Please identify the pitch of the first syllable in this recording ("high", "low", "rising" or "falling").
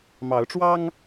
rising